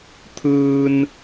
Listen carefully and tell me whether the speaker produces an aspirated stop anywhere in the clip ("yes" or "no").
yes